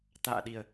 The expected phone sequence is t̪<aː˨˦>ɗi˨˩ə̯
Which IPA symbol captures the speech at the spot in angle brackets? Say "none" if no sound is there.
a̰ː˧˨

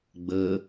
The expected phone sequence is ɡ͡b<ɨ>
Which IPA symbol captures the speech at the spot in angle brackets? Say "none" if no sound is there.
ə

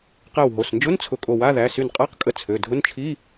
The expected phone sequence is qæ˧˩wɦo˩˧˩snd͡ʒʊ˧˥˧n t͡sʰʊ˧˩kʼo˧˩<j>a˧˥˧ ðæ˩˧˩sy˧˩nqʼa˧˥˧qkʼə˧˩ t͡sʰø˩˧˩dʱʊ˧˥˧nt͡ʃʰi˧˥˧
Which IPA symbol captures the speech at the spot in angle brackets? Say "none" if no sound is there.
w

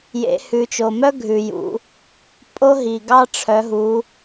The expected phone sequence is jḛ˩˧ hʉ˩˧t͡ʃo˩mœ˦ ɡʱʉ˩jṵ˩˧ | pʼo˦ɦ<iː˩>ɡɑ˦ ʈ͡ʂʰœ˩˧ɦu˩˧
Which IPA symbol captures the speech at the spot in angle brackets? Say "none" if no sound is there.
i˩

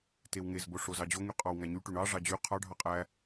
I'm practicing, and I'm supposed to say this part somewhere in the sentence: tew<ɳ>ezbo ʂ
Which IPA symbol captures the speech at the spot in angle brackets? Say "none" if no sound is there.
ŋ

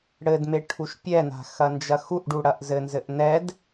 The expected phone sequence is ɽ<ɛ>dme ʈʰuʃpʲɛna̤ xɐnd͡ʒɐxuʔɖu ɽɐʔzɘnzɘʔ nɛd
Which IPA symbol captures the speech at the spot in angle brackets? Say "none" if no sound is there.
ɘ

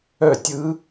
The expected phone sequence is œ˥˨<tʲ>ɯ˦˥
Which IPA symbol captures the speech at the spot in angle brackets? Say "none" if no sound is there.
tʲ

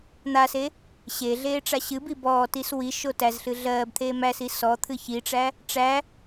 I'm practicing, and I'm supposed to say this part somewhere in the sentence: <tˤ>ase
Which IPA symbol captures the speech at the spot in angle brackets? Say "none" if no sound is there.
n̪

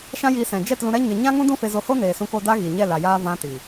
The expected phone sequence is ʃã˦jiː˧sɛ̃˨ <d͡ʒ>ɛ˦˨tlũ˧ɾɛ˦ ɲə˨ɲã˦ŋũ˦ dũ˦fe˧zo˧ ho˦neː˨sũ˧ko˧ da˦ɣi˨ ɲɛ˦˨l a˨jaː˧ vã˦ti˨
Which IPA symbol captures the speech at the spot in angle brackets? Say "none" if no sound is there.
d͡ʒ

